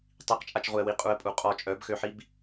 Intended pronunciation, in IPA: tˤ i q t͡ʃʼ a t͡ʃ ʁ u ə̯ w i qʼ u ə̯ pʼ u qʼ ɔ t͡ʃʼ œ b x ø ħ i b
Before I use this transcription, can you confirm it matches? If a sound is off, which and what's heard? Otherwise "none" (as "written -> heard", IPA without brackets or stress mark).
none